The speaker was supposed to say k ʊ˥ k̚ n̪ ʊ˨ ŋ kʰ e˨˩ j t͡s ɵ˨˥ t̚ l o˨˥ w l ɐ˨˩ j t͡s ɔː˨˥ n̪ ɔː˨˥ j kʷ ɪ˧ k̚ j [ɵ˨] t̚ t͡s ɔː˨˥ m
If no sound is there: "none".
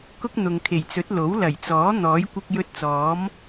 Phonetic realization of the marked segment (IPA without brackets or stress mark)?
ɵ˧